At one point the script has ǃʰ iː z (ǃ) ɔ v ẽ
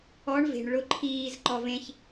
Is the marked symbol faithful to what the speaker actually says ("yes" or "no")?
yes